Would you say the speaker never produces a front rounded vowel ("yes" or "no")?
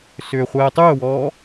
no